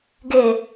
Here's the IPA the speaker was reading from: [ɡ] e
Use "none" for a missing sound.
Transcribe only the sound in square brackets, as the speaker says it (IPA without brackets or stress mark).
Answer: ɡ